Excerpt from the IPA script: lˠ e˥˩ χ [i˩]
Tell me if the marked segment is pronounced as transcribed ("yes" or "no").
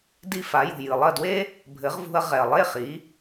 no